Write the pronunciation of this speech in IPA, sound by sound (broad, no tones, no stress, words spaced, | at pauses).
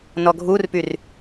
nɔɡʱurpyr